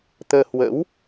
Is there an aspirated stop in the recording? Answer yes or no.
no